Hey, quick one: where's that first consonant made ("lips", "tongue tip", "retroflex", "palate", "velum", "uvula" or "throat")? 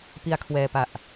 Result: lips